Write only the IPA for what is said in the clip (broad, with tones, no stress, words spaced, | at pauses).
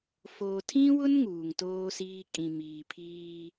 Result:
foː˨tʰĩ˦wʊ˦n ŋuː˨ŋtoː˦siː˦ kʼĩ˨ miː˨pʰiː˦